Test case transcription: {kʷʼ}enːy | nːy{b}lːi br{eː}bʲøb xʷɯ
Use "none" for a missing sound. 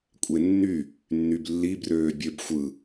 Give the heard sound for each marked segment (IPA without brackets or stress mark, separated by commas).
kʷʼ, b, øː